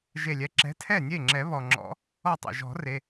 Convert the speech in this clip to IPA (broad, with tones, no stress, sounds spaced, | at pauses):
ʒ e˧˩ lʲ ɛ˨˥ ǁ ɛ̤˨˥ tʰ ɛ˥˩ nʲ e˥˩ ŋ͡ǁ ɛ˨˩˦ β ɔ˩ ŋ͡ǁ ɔ̰˨˩˦ | ɔ˧˩ tˤ ḛ˩ ʒ ɔ̤˨˩˦ r e˩˧˩